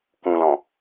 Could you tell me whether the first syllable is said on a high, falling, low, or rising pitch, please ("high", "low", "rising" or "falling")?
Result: low